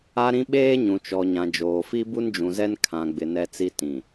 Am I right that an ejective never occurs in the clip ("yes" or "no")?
yes